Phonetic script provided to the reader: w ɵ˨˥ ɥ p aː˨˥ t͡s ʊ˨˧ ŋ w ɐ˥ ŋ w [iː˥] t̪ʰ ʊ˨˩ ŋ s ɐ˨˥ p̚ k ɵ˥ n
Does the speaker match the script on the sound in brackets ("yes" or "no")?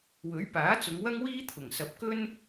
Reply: yes